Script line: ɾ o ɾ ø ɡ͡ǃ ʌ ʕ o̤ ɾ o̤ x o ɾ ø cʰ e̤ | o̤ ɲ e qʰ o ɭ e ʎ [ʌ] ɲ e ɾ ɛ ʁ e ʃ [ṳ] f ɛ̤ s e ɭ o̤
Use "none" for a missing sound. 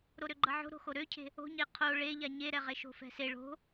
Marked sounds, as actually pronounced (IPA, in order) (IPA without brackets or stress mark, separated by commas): a, o̤